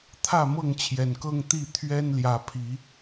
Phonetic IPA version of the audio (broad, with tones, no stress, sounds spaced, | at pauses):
t̪ʰ ä˥˨ m ɤ˥˨ ŋ t͡ɕʰ j ɛ˨˩ n k ɤ˦ ŋ t̪ i˥˨ t̪ʰ ɥ ɛ˦ n l j ä˨˦ pʰ i˨˦